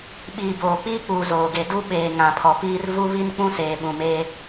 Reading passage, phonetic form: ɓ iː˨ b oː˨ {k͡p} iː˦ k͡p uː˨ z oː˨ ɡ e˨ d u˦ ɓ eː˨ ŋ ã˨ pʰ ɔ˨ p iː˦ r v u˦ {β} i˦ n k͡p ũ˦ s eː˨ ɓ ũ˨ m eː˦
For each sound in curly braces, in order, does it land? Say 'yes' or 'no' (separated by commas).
yes, yes